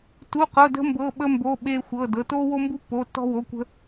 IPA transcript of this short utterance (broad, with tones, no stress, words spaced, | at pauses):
tu˧˥˧qɤ˧˥˧də̤˥ mbɤ˧˥˧ɓə˥mbo˧˥˧ ɓeː˥xʷɤː˧˥˧dɤ˧˥˧ toː˥wo˥mbu˥ pːo˧˥˧tːɔ̤˥ wo˧˥˧kʷə̤˥